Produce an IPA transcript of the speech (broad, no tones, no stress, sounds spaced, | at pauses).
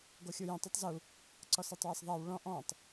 ɡ o xʲ u j ɛ̃ tˤ u tˤ z u | ǀ ɔ s e tˤ w a s ðˤ a w ɭ ɔ̃ ʔ ɔ̃ tˤ